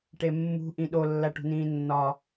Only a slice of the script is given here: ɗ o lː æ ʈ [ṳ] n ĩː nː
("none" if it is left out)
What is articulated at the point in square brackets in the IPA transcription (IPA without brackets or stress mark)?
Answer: ṳ